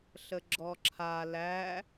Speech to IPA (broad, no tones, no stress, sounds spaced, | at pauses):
ɬ ə ɡ͡ǁ ɔ ǁʰ a l æ